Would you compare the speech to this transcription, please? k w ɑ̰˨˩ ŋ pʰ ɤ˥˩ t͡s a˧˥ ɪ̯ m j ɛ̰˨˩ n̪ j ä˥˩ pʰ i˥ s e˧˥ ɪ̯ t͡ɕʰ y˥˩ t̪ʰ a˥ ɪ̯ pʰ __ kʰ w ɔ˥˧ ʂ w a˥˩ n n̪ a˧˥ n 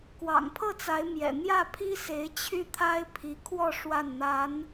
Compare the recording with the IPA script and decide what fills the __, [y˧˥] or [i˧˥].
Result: i˧˥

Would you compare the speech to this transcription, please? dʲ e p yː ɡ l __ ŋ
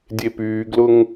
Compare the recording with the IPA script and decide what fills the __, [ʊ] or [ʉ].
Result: ʊ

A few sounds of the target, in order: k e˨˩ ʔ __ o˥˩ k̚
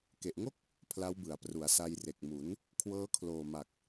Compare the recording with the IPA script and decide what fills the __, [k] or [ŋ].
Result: ŋ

